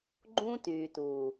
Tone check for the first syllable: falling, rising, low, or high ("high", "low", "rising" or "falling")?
high